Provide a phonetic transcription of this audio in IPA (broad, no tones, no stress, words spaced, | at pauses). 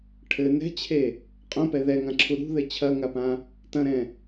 ʈʰɘ nɛ̤t͡ɕʰe | qʼõpɛ ðɛŋãǁʰu ɾṳðɘ t͡ɕʰɐŋapã | tɐ̃ɾɛ̃